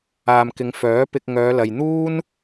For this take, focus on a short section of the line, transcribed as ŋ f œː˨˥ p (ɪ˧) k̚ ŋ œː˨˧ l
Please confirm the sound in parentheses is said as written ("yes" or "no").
yes